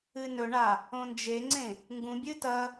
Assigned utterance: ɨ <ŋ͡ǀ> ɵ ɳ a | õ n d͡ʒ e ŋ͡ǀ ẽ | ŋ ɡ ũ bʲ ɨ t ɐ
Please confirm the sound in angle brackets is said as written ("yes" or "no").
no